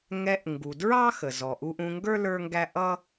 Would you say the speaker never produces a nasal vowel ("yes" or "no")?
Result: no